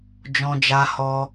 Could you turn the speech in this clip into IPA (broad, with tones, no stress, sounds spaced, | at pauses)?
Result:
d͡ʒ ɔ̃˧ d͡ʒ a˧ h ɔ˧